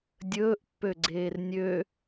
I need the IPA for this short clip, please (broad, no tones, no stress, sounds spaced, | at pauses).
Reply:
dʲ ɵː ʔ pː ø ɡ͡ǀ eː r nʲ ø